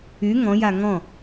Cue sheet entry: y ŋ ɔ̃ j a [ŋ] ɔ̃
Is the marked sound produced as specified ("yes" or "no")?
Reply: yes